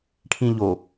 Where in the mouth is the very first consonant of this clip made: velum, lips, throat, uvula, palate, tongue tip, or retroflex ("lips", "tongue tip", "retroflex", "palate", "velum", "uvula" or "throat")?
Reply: retroflex